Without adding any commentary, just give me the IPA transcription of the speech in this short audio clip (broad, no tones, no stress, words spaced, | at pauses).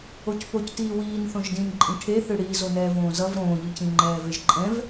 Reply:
ocpoctiː wiːn θõʒdĩnǃʼĩ ʈʰeθɯ ɽiː zonɛːvõːzʌv ɾõːʎɯcĩŋ͡ǃɛː veʒǃʼɛ̃v